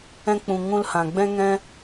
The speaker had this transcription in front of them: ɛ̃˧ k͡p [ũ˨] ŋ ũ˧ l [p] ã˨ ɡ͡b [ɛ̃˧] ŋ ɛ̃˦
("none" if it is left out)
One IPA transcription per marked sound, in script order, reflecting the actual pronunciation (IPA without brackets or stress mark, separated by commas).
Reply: ũ˨, h, ɛ̃˦